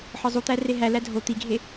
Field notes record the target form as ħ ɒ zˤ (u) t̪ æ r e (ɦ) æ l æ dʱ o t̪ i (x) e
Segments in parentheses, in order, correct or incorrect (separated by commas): correct, correct, incorrect